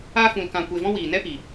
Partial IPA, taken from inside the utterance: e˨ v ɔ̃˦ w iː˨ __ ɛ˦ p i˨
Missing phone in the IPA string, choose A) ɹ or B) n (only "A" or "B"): B